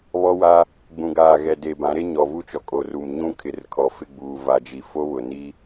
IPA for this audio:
β ɔ˦ w a˦ | ɡ͡b ũ˨ ɡ aː˨ ɣ ɛ˨ d e˨ b ã˨˦ ɾ e˦ ɲ ɔ˨ v u˦ t͡ʃ ɔ˨ kʼ o˨ r u˨ m ɲ ũ˦ kʰ ɪ˨ r kʰ ɔ˨ f ɪ˦˨ ɡ͡b uː˨ v a˨ d͡ʒ i˨ f o˦ β ʊ˨ n i˦

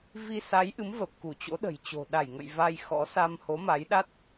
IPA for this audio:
v i˧ s a˨˦ j ʔ ɨ˨˦ m v ə˨˩ p̚ k u˧˩ t͡ɕ o̰˧˥ ɗ ə̤˨˩ j t͡ɕ o̤˨˩ ɗ a˧˩ j ŋ ə̰˧˨ j v a˧ j x ɔ̰˧˥ s a˧ m h o˨˦ m a˨˦ j ɗ a˦˥ t̚

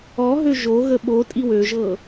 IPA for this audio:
ɔ ɦ ø ʒ o ɣ ə ɓ o tʼ i w ø ʒ ɤ

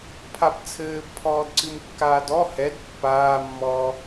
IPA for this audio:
pʰ a b t͡sʰ ɘː b pʰ ɔː d ǀ ɨ m kː aː d ɔ h ɛ d pː aː mː ɔː

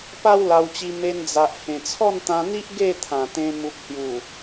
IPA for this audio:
p a˦ w l a˧ w t͡ɕ i˧ m e˧ n d͡z a˨ ʔ h ẽ˨˩ t͡sʰ ɔ˥˧ n t̪ ã˧ n̪ i˦ ʔ ɡ e˥˧ t̪ʰ ã˨˩ t̪ ẽ˧ m u˨ k̚ h j u˨˩

